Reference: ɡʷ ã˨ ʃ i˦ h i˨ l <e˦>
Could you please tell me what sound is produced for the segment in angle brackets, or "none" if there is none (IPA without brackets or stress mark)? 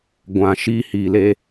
e˦